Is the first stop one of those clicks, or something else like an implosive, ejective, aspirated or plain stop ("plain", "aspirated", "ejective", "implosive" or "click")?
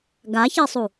plain